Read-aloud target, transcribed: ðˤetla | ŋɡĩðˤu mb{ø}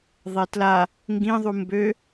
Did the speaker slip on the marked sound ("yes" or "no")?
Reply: no